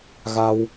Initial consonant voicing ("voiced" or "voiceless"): voiced